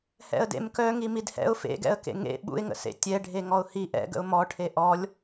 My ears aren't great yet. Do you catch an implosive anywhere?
yes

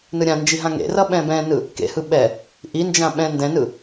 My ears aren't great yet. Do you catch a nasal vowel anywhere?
yes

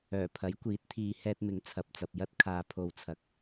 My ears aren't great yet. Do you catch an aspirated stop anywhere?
yes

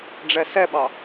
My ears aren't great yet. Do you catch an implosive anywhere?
yes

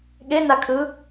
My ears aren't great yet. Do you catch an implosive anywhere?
yes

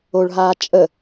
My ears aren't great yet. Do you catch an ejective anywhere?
yes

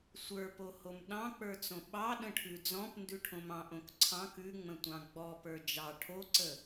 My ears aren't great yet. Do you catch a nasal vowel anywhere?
yes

